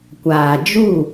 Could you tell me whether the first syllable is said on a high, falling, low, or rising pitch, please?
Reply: low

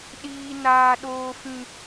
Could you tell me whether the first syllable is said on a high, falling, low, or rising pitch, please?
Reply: low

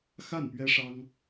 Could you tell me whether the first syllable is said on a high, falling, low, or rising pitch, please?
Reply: falling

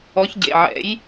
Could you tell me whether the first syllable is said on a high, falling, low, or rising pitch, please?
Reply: rising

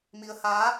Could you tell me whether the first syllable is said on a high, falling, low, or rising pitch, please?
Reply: rising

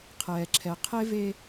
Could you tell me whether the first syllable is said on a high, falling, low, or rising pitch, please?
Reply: low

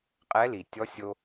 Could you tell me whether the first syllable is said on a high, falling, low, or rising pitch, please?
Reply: rising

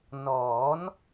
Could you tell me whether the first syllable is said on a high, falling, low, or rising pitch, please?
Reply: rising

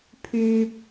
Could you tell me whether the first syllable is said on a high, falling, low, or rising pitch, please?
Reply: high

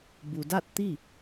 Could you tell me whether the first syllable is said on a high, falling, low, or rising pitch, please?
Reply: low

